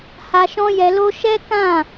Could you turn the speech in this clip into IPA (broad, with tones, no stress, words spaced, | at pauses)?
ha˧ʃɔ̃˦jɛ˧lo˦ ʃɛ˦kã˦˨